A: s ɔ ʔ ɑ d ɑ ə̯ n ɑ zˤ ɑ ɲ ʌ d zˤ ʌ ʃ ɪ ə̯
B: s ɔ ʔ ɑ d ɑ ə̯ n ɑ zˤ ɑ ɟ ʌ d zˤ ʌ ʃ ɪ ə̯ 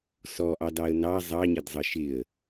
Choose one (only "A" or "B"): A